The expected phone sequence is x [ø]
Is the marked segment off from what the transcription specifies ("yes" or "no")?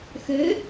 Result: no